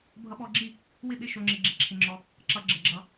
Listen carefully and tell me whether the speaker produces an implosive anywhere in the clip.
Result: yes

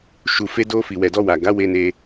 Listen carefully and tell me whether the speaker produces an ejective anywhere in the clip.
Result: no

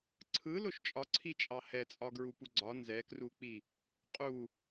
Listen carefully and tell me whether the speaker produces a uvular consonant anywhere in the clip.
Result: yes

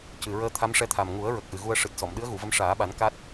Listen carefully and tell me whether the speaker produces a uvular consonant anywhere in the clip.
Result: no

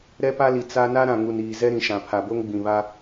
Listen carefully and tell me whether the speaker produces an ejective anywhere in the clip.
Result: no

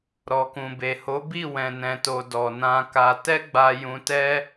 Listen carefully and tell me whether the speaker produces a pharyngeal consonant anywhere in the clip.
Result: no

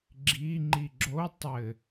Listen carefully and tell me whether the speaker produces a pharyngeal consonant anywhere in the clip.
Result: no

